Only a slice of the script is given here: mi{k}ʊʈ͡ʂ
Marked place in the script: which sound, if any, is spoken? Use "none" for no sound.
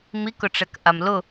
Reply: k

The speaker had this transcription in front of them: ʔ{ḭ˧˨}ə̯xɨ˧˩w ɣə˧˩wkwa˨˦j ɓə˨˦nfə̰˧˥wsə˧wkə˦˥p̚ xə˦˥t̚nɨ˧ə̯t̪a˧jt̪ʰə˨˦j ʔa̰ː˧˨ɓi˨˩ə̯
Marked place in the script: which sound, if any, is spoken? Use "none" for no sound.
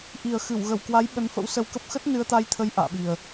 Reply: i˨˩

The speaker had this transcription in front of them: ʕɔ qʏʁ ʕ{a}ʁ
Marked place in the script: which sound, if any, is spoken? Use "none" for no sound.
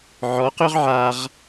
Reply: a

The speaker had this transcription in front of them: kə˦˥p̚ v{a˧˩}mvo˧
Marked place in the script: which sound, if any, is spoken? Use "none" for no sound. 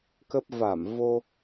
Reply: a˧˩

